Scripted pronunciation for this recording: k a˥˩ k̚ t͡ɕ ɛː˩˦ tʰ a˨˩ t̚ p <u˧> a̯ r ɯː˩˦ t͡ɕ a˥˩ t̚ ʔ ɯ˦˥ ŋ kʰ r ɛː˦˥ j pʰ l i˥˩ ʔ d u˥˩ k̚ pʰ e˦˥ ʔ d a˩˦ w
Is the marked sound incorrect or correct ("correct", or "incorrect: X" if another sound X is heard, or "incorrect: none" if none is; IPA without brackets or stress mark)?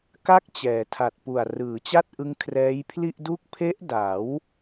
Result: incorrect: u˨˩